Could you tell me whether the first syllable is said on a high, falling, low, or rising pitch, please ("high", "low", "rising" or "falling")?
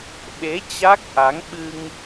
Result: rising